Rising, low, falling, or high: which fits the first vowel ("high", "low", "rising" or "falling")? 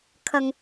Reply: low